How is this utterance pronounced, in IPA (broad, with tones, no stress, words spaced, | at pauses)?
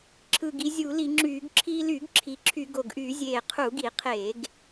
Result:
ǁʰɯ˨˩ɡi˧ zʲu˧˩˧li˧˩˧ŋ͡ǁyː˧˩˧ɡ ǁʰiː˧lyː˧˩˧ɡ ǁʰi˨˩ǁʰy˧˩˧ ɡo˨˩ɡʔy˧˩˧zʲeː˨˩ qʰu˧˩˧ɡi˧˩˧qʰeː˧˩˧ɡ